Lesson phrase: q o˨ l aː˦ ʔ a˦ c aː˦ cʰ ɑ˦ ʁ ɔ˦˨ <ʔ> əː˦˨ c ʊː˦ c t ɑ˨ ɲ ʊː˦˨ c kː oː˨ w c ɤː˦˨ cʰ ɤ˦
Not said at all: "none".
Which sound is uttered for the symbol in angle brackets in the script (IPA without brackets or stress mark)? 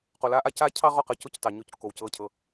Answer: q